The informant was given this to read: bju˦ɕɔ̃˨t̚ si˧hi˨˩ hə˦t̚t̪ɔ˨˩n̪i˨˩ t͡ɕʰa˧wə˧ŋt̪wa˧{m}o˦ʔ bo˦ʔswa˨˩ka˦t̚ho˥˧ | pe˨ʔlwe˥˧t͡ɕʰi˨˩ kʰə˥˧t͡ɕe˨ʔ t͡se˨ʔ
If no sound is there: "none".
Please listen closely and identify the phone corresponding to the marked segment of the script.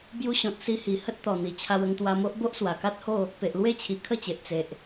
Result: m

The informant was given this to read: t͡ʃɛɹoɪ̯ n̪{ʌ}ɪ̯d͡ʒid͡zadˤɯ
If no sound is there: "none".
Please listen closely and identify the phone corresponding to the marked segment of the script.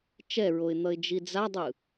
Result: ʌ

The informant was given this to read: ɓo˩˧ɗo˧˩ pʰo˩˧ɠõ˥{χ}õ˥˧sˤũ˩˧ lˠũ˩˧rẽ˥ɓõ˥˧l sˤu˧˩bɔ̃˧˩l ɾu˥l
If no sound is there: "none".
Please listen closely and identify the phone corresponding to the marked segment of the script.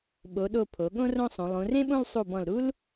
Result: r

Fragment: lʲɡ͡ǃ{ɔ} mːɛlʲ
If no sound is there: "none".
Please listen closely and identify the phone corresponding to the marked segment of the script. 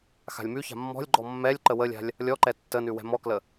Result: ɔ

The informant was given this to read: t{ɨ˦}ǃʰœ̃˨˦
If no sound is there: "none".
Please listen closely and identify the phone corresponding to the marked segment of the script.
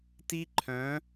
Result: i˦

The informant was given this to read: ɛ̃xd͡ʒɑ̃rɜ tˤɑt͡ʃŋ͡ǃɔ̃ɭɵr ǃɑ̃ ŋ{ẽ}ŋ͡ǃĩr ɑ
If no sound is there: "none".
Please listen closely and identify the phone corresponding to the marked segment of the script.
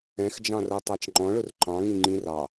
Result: ĩ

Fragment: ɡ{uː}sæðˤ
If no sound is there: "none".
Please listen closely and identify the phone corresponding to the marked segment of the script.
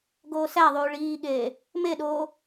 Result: oː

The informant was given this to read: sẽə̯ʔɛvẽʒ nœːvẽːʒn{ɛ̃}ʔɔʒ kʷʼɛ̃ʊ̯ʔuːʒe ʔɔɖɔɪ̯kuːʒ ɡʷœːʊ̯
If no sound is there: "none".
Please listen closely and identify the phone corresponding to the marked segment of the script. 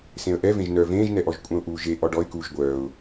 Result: ɛ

